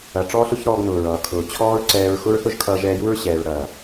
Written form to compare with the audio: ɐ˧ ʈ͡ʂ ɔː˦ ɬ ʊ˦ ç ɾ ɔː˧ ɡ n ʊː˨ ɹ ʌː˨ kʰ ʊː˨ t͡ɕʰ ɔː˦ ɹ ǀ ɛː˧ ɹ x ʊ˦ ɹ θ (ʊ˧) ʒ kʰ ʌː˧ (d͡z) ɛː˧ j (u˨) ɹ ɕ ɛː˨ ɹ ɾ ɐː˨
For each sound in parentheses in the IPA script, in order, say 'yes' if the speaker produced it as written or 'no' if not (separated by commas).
no, no, no